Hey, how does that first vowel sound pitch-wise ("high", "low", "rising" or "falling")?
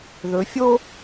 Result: rising